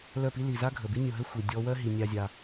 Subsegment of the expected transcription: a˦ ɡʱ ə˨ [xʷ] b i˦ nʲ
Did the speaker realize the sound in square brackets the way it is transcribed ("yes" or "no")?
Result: no